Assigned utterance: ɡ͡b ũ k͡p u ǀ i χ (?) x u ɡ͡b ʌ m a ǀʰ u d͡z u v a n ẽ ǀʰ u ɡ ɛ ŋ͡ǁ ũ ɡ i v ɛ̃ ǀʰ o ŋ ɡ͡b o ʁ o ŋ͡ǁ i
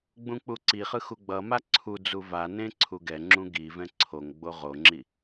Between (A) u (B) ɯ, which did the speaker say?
B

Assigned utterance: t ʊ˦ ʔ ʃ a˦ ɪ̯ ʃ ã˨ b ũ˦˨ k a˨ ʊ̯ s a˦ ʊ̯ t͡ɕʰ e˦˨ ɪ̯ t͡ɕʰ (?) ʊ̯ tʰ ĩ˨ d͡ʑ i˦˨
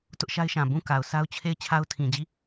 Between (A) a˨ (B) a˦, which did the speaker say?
B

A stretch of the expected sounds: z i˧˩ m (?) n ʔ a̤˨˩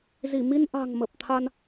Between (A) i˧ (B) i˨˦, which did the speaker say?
A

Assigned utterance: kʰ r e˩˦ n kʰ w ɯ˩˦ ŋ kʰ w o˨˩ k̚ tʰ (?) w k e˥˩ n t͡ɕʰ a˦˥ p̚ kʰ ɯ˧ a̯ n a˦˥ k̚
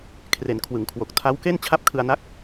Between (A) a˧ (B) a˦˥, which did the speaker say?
B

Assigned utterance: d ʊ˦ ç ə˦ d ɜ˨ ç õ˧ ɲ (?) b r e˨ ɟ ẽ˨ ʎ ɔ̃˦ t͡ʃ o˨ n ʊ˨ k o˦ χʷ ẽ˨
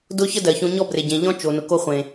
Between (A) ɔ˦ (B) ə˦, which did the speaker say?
A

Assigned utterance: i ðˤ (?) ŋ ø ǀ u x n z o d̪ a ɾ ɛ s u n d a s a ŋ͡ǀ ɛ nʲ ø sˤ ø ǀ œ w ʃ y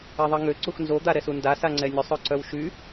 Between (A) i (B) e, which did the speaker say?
A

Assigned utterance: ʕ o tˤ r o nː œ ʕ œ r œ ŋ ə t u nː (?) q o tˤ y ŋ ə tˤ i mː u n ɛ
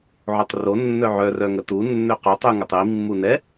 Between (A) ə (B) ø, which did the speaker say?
B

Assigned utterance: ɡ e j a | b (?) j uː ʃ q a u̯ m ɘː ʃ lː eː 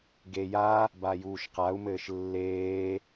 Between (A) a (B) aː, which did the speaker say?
A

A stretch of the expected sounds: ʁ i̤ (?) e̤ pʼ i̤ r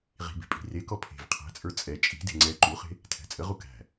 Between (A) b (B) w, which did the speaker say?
A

